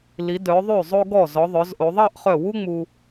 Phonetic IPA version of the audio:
li˩˧dœ˩˧ ðˤʉ˧˩zˤo˧ɡɔ˧˩ zɔ˩˧ðˤœ˩˧zʔo˩˧ ðˤɑ˥˧ʔχœ˧˩wu˥ŋ͡mu˧

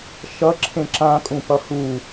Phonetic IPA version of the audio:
ʃʌǁʰẽ ǁãkʼũpʌ hu

